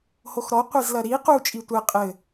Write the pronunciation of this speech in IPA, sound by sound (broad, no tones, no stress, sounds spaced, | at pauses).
h o x ɾ ɔ qʷ i z l ɐ ɾ i q u t͡ʃʼ i tʷ ɛ qʼ ɘ